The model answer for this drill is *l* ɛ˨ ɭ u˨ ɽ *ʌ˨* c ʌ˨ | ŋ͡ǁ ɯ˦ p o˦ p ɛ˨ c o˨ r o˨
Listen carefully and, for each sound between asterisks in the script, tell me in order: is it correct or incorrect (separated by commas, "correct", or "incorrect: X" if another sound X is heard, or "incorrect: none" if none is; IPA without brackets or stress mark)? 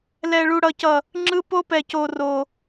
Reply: correct, correct